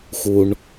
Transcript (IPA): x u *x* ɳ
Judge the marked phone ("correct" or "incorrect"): incorrect